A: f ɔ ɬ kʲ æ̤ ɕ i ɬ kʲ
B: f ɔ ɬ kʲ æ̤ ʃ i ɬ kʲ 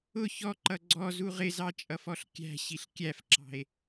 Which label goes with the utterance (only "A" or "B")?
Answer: A